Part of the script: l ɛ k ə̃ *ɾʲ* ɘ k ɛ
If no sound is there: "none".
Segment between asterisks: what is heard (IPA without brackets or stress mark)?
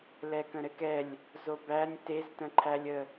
ɾ